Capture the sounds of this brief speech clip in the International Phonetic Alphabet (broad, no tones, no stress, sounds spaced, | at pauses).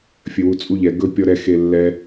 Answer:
fʲ ɘ w u t͡sʼ u ʎ ɛ ɡ ɵ pʲ ɔ ɾ ɛ x e lː ɛ